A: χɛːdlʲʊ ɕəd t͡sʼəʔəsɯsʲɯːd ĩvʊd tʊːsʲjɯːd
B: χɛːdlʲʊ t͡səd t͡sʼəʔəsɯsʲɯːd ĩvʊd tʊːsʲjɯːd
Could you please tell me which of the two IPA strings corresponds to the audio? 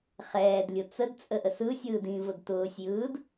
B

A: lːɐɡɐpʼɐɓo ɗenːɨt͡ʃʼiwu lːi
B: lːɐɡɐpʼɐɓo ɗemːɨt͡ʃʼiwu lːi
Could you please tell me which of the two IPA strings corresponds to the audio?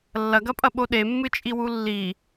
B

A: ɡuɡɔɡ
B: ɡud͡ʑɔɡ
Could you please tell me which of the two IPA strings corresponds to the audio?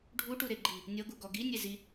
A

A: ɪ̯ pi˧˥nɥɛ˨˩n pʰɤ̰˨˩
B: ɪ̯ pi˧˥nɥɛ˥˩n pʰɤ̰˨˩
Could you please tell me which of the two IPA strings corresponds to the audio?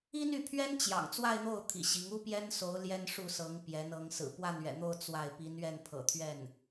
B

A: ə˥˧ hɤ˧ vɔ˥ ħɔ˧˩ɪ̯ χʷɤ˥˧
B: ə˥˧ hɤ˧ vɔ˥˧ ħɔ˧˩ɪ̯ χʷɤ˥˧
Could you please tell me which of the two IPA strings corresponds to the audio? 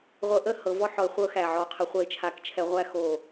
A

